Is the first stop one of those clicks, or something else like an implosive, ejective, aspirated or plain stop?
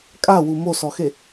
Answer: ejective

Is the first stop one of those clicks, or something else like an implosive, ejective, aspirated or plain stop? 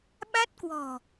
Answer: implosive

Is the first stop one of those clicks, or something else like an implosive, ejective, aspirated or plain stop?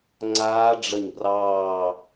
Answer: click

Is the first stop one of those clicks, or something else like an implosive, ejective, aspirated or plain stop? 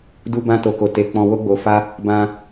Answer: plain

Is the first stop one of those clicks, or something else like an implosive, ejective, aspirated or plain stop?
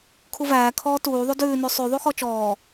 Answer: aspirated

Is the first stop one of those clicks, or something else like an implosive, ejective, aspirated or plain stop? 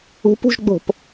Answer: plain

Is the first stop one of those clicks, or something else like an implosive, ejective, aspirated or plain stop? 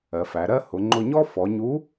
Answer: click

